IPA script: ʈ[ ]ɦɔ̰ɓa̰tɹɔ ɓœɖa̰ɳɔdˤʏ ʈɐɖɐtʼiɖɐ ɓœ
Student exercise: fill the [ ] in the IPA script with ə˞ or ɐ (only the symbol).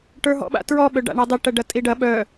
ə˞